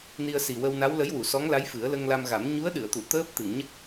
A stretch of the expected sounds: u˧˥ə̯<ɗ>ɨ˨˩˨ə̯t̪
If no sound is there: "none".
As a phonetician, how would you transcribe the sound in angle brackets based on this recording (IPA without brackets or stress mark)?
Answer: ɗ